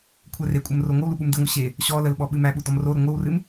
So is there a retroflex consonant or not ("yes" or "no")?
no